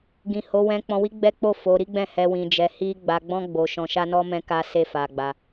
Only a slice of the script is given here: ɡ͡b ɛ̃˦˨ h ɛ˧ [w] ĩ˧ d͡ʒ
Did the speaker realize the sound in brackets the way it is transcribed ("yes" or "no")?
yes